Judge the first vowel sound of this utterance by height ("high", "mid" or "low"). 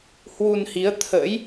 high